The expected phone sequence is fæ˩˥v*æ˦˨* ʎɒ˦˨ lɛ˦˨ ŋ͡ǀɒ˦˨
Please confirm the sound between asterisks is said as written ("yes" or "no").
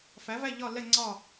yes